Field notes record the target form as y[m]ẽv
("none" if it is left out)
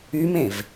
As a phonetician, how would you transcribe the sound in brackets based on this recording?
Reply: m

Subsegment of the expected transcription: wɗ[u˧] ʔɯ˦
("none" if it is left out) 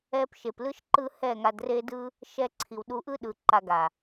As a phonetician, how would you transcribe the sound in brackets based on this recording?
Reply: u˧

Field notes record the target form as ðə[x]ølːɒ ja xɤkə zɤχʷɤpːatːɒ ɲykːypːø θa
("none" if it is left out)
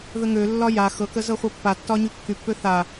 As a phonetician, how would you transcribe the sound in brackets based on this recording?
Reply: ŋ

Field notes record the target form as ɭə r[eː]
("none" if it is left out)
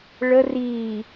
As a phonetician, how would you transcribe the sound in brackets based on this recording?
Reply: iː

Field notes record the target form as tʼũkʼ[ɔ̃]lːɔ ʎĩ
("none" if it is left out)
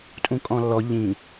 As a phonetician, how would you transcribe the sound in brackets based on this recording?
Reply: ɔ̃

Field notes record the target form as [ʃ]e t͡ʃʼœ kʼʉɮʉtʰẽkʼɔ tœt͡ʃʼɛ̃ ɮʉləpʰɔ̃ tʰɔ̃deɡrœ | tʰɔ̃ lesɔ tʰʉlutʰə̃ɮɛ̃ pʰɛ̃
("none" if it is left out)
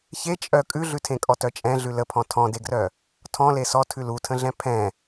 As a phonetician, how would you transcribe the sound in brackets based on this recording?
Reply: ç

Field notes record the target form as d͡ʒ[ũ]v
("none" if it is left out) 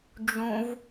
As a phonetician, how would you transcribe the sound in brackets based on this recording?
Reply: ũ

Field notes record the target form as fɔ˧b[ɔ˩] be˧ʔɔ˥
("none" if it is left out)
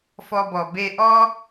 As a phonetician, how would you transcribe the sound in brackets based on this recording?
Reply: ɔ˩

